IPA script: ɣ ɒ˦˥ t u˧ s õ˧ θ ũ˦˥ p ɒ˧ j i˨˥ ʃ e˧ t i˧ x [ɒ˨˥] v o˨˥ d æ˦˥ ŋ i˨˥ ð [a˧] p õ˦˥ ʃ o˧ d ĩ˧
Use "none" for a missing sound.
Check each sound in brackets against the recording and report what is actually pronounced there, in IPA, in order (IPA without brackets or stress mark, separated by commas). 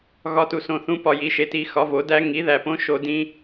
ɒ˨˥, æ˧